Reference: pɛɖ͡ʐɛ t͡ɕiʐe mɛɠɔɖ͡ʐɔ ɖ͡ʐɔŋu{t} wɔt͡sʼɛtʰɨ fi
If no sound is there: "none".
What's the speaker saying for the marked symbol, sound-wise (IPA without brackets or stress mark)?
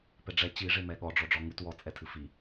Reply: t